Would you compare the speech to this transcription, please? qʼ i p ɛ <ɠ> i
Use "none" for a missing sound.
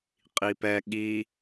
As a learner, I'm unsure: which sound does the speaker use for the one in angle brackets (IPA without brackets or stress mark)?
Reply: ɠ